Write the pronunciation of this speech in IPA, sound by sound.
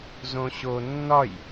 z õ ɕ o nː ɒ j

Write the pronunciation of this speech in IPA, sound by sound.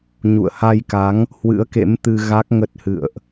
ɲ ṵ˧˨ ə̯ h a˧ j k a˨˦ ŋ | h w ɨ̰˧˥ ə̯ k ḛ˧˥ m t̪ ɨ˧ ɣ a˦˥ k̚ ŋ ə˦˥ t̚ h ɨ̰˧˨ ə̯ ʔ

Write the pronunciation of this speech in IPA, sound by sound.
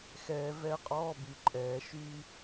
x ɛː˩ v ɛ˨˩˦ qʼ ɔː˩˧˩ b y˩ ǃʼ ɛː˩ ʃ y˧

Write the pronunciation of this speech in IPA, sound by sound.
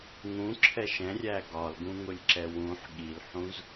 ŋ ũ ǁʰ ɛ ʃ ɛ̃ rʲ æ ɡ ɒ l ɡ ũ ŋ ʊ lʲ ǁ ɛ w ũ ħ ɠ i l ħ ũ z

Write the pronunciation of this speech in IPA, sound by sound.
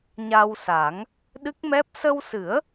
ɲ a˧ w s a˨˩˦ ŋ | ɗ ɨ˦˥ k̚ m ɛ˦˥ p̚ s ə˧ w s ɨ˨˩˦ ə̯

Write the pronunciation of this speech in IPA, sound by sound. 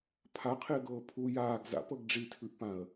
pʰ a qʰ ɪː ɡ ɤː pʰ u j aː ɡ z a̰ p ɤ ɡ ɖ͡ʐ i tʰ ʉ ʔ p ã ə̯

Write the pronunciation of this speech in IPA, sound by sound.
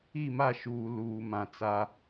i˦˨ m a˦˨ ʃ uː˨ l uː˨ m ã˨ t͡s a˦

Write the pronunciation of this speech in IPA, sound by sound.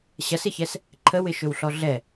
ɕ ɐ s ɪ ç ɛ s | ǃʰ ə w ɪ ʃ ɵ w ɬ ɔ ɮ ɛ

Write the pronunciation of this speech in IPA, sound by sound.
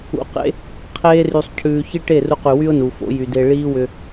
ṵ˨˦ q ḛ˦ | qʰ eː˧ r y˨ sˤ cʰ ʉː˨ ç i˦ ʈ e˦˨ r u˧ q y˨ w y˦ ʊ̯ n u˨ f o̰˨˦ j y˨ d e˧ ɭ iː˦ w ʏ˧

